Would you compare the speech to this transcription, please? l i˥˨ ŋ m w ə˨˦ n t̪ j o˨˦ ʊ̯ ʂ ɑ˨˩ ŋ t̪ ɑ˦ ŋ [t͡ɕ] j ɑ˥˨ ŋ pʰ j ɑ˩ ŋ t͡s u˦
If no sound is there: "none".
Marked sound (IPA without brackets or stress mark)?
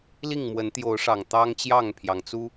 t͡ɕ